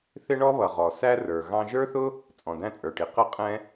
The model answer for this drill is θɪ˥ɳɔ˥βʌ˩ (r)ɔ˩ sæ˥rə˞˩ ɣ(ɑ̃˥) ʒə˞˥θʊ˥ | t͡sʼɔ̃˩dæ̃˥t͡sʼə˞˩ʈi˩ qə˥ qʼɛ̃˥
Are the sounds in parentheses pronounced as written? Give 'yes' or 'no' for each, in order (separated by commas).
no, yes